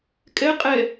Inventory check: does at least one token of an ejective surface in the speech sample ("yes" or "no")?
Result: yes